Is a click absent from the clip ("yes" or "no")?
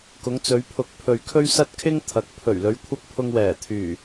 yes